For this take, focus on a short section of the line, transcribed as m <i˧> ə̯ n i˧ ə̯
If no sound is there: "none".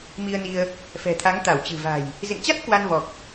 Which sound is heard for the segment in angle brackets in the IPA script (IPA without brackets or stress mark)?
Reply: i˧